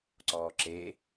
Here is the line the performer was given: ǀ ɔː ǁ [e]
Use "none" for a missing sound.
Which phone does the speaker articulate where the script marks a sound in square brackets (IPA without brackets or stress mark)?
e